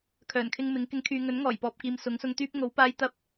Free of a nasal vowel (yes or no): yes